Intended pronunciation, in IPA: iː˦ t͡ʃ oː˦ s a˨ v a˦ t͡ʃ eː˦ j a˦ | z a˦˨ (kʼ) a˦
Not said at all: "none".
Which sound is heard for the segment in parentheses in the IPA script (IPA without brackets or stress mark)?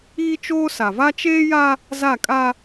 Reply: kʼ